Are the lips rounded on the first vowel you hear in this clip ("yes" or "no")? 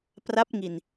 no